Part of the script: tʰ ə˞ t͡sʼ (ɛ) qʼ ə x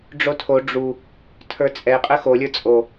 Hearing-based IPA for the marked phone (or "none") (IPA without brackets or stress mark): ɛ